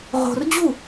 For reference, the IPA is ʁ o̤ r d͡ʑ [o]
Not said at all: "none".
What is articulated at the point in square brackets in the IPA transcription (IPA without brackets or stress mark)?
u